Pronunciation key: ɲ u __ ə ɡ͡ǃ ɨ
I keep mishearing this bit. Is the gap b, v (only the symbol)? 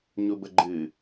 b